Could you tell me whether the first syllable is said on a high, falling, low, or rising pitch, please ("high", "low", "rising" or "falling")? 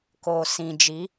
low